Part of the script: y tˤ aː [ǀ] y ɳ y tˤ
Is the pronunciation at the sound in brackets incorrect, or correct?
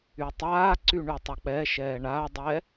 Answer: correct